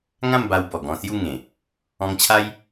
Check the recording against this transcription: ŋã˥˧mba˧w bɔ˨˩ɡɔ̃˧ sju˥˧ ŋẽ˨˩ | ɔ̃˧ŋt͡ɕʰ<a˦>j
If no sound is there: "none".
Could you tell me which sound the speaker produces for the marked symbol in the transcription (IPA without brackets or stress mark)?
a˦